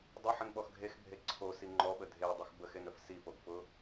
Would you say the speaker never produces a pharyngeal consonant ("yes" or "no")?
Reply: no